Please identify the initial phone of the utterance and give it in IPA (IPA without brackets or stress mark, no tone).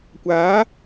kʷ